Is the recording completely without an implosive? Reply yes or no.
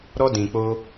yes